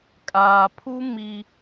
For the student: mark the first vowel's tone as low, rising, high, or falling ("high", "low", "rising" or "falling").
low